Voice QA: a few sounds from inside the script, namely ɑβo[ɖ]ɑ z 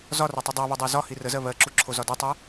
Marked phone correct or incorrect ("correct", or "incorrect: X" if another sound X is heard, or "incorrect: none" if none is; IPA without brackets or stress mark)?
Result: incorrect: dˤ